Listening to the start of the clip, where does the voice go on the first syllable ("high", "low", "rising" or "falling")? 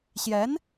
rising